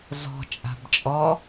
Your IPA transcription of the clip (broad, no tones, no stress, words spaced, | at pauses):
zɔ̤ t͡ʃʼa̤bt͡ʃʼɔ